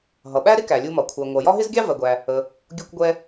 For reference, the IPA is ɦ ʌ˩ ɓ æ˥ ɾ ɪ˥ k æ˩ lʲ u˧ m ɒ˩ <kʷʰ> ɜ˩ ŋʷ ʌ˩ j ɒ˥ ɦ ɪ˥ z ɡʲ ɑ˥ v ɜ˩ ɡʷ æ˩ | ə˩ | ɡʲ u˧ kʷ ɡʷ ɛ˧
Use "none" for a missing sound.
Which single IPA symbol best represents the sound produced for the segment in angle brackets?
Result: kʷʰ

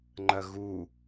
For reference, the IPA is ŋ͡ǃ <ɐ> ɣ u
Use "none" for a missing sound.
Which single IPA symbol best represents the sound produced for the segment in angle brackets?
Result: ɐ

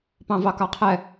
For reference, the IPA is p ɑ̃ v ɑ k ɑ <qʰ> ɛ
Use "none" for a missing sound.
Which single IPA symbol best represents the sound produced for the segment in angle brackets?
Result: qʰ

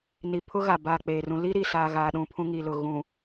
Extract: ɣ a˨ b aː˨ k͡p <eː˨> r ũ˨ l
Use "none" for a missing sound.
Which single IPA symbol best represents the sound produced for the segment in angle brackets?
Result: eː˨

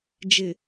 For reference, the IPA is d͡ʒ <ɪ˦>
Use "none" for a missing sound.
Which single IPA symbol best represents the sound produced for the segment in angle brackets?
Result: ɪ˨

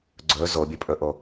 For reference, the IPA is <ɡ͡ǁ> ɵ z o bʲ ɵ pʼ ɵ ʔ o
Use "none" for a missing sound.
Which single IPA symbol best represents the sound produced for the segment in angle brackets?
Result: ɡ͡ǀ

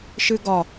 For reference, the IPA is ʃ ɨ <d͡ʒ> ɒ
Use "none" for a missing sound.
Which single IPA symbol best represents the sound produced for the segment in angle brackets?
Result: ɡ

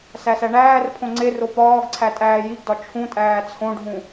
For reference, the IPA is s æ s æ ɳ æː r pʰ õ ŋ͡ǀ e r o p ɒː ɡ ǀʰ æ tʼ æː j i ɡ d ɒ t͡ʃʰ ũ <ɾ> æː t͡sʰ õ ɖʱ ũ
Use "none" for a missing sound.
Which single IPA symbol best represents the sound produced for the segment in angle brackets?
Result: tʼ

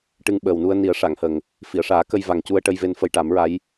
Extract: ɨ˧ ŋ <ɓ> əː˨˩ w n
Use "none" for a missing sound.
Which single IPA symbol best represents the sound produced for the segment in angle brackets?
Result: ɓ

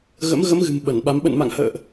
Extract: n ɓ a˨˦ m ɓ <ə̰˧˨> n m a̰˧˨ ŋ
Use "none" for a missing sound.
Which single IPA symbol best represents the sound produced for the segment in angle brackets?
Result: ə̰˧˨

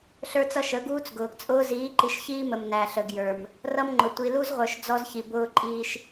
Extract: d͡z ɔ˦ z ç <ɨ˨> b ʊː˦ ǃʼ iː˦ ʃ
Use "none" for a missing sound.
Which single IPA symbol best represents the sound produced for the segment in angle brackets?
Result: i˨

